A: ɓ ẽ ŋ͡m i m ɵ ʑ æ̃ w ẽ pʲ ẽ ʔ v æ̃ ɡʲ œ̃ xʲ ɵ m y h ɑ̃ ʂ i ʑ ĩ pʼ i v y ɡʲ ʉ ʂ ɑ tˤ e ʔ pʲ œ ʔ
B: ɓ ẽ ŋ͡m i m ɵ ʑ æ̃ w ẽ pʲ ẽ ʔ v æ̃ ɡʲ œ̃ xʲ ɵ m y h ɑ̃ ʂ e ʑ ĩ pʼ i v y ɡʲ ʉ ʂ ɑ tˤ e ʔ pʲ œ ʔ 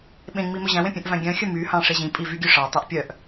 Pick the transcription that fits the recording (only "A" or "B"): B